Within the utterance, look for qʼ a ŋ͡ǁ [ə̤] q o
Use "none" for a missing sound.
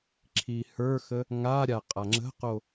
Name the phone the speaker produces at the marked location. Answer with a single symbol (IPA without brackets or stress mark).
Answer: ə̤